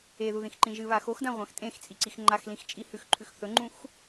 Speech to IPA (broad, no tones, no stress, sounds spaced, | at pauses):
e ð u ð ĩ x ǃ ĩ ʒ ɨ β a x o x d ã ʁʷ ã x tʼ ẽ x t͡sʼ i ǀ i x ŋ͡ǃ a x l ĩ x t͡ʃʼ i h ʉ x ǃʰ ʉ x θ ɵ ŋ͡ǃ ũ x